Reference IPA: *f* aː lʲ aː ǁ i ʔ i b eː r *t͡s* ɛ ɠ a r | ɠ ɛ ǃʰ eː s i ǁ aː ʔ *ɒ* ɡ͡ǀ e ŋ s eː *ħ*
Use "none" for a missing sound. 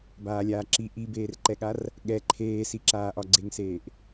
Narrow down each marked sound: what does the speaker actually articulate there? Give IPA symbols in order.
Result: b, ǃ, ɒ, ʔ

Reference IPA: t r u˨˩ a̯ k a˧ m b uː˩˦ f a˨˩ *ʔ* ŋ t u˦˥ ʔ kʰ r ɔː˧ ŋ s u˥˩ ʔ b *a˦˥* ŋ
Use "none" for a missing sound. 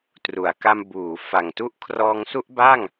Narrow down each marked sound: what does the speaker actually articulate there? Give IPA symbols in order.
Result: none, a˥˩

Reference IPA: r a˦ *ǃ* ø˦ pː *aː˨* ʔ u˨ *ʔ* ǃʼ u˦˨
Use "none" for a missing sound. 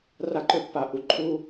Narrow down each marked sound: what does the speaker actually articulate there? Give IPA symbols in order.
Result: ǃ, a˨, none

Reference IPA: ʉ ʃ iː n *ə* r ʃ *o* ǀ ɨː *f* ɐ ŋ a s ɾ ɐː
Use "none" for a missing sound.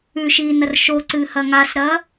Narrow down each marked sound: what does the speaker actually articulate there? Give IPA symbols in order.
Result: ɐ, o, h

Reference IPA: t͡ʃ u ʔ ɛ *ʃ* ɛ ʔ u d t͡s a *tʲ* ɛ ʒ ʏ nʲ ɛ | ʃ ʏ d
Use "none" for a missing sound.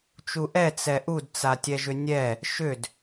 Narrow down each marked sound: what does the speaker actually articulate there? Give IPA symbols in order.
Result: t͡s, tʲ

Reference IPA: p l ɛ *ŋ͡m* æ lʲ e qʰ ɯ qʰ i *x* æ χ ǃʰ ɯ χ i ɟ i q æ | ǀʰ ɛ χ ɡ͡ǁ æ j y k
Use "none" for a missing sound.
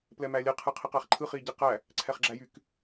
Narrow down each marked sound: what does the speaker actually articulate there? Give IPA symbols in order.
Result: m, q

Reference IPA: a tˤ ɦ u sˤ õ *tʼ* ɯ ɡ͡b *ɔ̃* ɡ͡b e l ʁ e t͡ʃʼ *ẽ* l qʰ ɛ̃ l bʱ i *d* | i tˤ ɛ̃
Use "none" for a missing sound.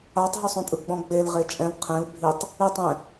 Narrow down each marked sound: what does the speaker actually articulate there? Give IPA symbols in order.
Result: tʼ, ɔ̃, ɛ̃, tˤ

